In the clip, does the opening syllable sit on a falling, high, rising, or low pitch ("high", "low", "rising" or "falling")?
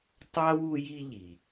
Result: high